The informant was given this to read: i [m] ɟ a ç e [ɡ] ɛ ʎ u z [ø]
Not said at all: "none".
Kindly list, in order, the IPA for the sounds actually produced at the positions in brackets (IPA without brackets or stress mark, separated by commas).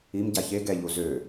m, ɡ, ø